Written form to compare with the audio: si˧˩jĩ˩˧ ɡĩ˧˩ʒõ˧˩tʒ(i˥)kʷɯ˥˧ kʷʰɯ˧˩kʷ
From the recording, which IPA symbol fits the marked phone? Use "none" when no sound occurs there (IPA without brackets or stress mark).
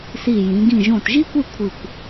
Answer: i˥